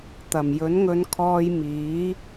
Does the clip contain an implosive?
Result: no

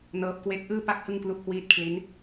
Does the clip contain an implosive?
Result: no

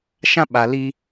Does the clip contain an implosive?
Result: yes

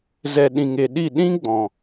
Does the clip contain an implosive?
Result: yes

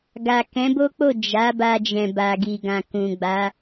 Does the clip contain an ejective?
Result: no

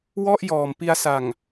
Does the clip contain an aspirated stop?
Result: no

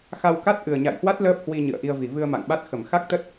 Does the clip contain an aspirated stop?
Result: no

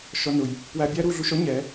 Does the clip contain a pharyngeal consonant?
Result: no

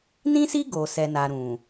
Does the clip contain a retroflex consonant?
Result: no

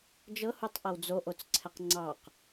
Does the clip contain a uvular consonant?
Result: yes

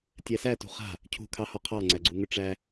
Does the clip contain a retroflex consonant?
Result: yes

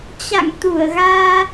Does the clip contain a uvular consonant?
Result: no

